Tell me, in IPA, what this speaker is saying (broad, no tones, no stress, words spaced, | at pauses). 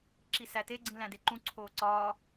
ǁisæte ɡ͡ǀĩlæ̃deǃũ ǀʰoːǀɒː